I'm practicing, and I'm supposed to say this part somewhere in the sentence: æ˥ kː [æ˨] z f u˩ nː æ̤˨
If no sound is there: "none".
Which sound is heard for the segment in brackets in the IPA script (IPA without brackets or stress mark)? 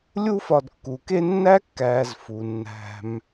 æː˨